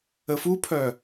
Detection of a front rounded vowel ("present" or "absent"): present